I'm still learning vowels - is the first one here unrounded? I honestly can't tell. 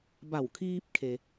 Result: yes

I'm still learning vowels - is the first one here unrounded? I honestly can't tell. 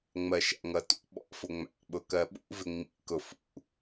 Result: yes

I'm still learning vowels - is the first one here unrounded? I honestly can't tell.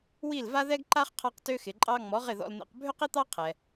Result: yes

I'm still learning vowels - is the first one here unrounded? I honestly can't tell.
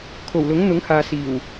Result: no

